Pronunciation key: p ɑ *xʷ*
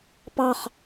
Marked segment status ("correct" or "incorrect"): incorrect